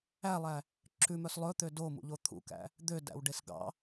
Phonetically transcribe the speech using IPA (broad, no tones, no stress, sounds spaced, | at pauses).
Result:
æ lˠ æ | ǁ ʉ m œ s lˠ ɵ t̪ ø d o m ṵ ʎ o t̪ʰ ṵ k æ̰ | d̪ ø d æ̰ w ɖ e s ɡ ɑ̰